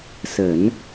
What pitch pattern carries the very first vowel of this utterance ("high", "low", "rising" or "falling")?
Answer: low